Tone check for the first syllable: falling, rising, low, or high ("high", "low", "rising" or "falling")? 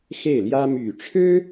falling